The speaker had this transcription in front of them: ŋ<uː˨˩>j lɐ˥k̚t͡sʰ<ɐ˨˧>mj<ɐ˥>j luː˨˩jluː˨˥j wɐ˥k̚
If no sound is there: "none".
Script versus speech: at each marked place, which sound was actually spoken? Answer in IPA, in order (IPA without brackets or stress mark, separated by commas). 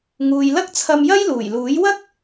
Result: uː˨, ɐ˧, ɐ˥